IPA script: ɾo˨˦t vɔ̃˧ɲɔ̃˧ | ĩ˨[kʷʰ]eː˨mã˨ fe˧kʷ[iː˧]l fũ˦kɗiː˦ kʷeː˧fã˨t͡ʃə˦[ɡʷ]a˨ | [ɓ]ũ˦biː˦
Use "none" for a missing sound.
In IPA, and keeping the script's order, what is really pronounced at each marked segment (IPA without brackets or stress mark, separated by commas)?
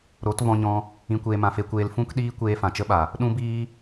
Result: kʷ, eː˧, ɓ, ɗ